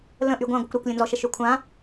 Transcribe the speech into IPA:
l ə̃ ʔ y ɡʷ ã ɡʷ ə kʷ ɾ ø kʷ lʲ ə̃ n z ɔ ʃ ə ʃ ø kʷʰ ã

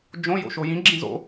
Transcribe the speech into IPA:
d͡ʒ õ j o̰ ʃ o j ĩ ɡ͡ǁ ĩ z o̰

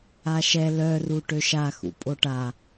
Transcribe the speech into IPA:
a ʃ ɛ l œ r u ʈ ø ʃ a x ṵ pʼ o ʈ a

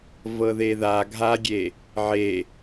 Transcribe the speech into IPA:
v ɤ ð e ð a ɡʱ a ɡʲ e | ʕ e

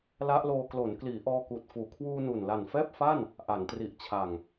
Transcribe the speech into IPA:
l a˦˥ ʔ l oː˧ k l o˩˦ n k l iː˩˦ ʔ ɔː˧ k uː˨˩ t̚ f uː˨˩ kʰ w uː˧ n u˨˩ n l a˨˩ n f ɛː˥˩ p̚ f a˥˩ n | ʔ a˩˦ n t r i˨˩ ʔ t͡ɕʰ a˨˩ ŋ

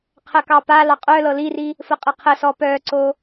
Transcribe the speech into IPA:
qʰ ɜ k ɑ p a l ɑ qʼ œ l ɤ l i r i | f ə qʼ ə qʰ ə s ɔ p œ ǀ o

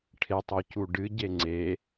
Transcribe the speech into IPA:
ʈʰ e tˤ o c u ɖ ɨ ɟ e ŋ͡ǀ e

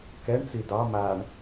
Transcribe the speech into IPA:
k ɛ ɳ t͡s i d ɑ m a ɳ

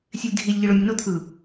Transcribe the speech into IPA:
sʲ e lʲ dʱ i lʲ ʎ i ɭ o mʲ ə n o t̪ʰ ɯ

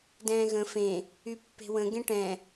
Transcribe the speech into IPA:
d ɛ̃ː ɣ ə̃ f ẽ | y pː e̤ w ə̃ ɡ ẽ ʈ ɛ̃

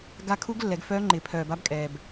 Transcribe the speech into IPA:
ɡ a˦˥ kʰ u˦˥ ɡ lː ɛ˨˩˦ ɡ f œː˦˥ ŋ͡ǃ ɪː˨ pʰ œː˨ b a˦˥ b kʼ ɛː˨ b

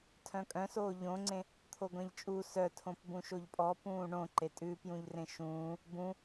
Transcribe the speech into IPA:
tʰ œ̃ kʼ œ̃ s oː ʎ õ ŋ͡ǀ ẽ | t̪ʰ o ɡʷ ẽ ʎ t͡ʃʼ u s œ tʰ õ p b ũ ʃ o ʎ pʼ ɔ p ũː ɳ õ ǃ e tʼ ʉ p j ũ ʎ r ẽ ʃ ũː | b ũ

